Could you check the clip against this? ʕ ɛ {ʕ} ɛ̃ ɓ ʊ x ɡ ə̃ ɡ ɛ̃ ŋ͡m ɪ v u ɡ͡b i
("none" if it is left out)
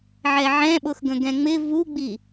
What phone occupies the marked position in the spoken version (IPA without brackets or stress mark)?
ʕ